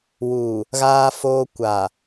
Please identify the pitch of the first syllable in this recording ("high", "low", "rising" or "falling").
low